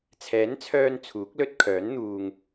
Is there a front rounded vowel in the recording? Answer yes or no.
yes